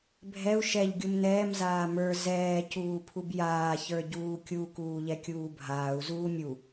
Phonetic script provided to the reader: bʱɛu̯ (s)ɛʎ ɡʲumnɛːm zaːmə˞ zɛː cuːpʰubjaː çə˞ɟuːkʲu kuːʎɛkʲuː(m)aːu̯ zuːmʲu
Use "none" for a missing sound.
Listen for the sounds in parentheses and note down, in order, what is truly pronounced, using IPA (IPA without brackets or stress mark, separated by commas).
ʃ, bʱ